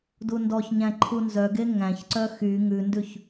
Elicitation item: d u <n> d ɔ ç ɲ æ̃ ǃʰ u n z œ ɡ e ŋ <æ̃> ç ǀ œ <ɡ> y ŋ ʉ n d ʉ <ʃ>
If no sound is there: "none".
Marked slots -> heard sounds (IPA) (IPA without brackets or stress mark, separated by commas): n, æ̃, x, ç